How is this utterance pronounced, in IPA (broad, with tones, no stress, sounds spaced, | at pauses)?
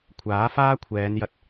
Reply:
kʷʰ aː˨˥ f aː˥ kʷʰ ɛː˨˧ n j ɐ˧ t̚